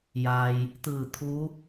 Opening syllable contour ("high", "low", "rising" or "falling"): low